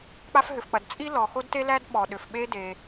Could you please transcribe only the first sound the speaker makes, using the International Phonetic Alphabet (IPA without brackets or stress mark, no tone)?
k͡p